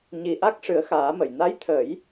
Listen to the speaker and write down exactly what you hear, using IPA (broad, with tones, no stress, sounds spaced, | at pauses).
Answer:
ɲ i˧ ʔ a˦˥ k̚ ʂ ɨ˨˩˦ ə̯ x aː˨˩˦ m ə˨˩˨ j n a˧˥ j t̪ʰ ə˨˩˦ j